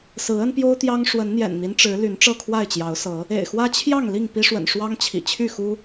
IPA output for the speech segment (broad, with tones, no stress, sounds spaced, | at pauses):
s ɹ̩˨˦ ə˦ n p j o˦ ʊ̯ t̪ j ɑ˦ ŋ ʂ w ə˨˦ n n̪ j ɛ̰˨˩ n n̪ i˦ n ʈ͡ʂ ɻ̩˨˦ l y˨˦ n ʈ͡ʂ ɤ˥˨ kʰ w a˥˨ ɪ̯ t͡ɕ j ɑ˨˦ ʊ̯ s ɤ˨˦ | ḛ˨˩ ɪ̯ x w ä˦ t͡ɕʰ j ɑ˥˨ ŋ l i˥˨ ŋ p i˦ ʂ w ə̰˨˩ n ʂ w ɑ˦ ŋ t͡ɕʰ ḭ˨˩ t͡ɕʰ y˥˨ x u˦